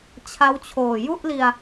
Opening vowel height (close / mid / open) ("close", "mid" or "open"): open